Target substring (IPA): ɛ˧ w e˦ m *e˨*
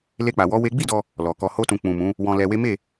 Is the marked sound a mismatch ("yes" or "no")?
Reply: yes